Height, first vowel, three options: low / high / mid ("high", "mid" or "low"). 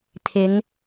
high